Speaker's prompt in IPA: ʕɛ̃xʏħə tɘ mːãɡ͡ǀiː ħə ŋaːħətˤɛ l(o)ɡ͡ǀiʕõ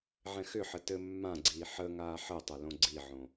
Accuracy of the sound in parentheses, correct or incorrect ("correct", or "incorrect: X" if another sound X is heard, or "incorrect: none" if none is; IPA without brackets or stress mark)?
incorrect: õ